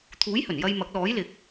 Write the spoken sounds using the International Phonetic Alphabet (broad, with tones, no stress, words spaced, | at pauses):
t̪ʰuː˨˥jhɵ˨˩njɐ˧jmɐ˨˥k̚ lɔː˨˥jlɪ˨k̚